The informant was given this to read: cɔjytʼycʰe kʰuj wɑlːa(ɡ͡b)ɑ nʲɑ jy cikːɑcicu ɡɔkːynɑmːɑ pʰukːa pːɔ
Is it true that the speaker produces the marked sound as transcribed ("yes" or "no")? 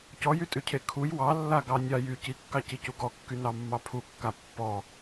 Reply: no